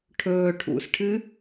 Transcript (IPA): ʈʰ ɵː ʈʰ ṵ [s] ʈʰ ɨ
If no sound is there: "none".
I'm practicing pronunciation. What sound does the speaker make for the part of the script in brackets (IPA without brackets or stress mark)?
s